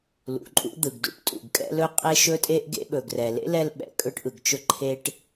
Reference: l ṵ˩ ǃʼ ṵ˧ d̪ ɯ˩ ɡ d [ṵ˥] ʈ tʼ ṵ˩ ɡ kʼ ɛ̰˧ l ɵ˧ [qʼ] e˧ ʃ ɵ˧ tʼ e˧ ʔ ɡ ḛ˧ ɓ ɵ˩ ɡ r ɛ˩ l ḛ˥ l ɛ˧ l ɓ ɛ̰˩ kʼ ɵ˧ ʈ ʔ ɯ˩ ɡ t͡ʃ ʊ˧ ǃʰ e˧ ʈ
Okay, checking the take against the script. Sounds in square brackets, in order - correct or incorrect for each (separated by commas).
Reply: correct, correct